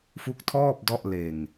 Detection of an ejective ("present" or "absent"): absent